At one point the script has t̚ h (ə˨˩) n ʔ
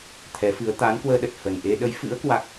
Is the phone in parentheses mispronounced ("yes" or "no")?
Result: no